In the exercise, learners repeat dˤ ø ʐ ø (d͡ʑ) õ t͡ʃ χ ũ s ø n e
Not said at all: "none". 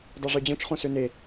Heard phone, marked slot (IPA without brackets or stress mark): d͡ʑ